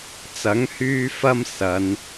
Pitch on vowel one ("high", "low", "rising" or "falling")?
rising